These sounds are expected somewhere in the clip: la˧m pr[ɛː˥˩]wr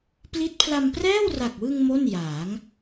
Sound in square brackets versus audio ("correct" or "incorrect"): correct